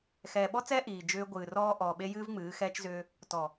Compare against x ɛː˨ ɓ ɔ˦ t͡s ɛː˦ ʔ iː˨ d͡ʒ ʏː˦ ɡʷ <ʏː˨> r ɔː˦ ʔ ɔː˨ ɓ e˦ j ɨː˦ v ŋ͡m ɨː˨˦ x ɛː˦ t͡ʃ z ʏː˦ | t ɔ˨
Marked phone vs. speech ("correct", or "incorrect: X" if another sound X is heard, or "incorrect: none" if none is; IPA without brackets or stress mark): incorrect: ɨː˨